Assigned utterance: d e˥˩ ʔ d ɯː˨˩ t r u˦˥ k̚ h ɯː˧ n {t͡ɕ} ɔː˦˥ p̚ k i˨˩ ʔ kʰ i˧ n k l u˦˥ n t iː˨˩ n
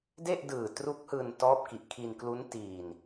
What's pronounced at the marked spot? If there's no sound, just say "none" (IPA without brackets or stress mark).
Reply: t